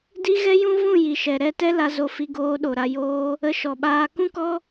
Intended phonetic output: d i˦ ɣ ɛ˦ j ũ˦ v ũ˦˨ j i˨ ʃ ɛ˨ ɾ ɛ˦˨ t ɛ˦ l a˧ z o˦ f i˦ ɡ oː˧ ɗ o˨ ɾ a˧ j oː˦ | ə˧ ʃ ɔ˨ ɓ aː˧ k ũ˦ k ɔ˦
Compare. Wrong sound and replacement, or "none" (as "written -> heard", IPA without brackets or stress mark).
none